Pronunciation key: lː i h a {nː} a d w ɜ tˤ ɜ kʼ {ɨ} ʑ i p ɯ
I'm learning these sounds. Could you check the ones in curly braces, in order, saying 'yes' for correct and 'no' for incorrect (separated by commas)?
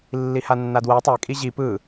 yes, no